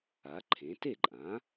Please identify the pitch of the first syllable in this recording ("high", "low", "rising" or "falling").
rising